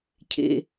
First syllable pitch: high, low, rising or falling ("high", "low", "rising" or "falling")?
low